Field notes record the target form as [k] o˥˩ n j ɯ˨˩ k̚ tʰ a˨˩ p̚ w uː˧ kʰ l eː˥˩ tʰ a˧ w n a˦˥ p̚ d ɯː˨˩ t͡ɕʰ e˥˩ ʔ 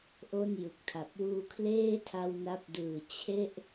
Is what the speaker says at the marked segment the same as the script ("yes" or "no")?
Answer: no